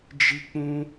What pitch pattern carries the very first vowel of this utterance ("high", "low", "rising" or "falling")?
high